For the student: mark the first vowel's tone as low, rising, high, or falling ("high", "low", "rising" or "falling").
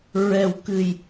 low